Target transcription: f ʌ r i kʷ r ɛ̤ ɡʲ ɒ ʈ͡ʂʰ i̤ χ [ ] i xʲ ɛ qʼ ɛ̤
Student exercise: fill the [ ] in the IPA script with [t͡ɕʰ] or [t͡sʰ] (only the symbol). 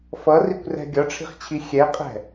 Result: t͡ɕʰ